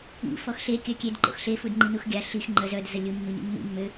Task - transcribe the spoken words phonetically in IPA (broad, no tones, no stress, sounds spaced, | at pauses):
ḭ f ɔ x ɬ e kʲ œ kʲ e d ǃ o̰ x ɬ e f u d ŋ͡ǃ i n u x ɡʲ a ɬ i x ŋ͡ǃ œ z œ d z ə lʲ u mː i ɲ ḭ mː ḭ mː ø